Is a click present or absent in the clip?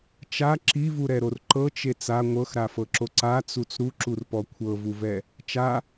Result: present